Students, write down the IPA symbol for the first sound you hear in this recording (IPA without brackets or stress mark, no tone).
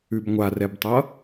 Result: ʉ